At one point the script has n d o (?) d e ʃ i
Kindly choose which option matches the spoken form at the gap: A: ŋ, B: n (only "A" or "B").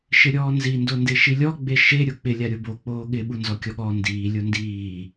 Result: B